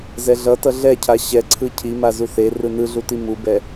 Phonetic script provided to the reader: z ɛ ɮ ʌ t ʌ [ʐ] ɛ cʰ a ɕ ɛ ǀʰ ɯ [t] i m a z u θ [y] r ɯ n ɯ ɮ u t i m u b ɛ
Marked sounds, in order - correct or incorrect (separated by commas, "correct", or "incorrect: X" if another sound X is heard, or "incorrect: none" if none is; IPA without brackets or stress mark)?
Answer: incorrect: ɮ, incorrect: cʰ, incorrect: e